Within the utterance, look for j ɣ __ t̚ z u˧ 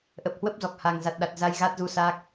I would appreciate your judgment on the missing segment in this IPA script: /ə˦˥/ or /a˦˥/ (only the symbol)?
a˦˥